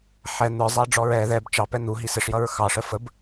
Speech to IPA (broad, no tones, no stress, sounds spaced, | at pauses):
ħ ɛ n̪ ə˞ zˤ æ ɖ͡ʐ ɔ ɹ ɛ ð ɛ b t͡ʃ ɑ p ɛ n̪ u ɦ i s ɪ ʂ j ʌ ɹ x ɑ ʂ ə f ə b